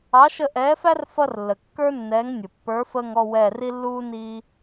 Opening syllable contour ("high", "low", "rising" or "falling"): rising